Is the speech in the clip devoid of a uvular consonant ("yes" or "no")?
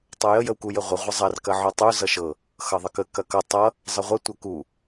no